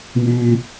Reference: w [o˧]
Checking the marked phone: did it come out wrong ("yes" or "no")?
yes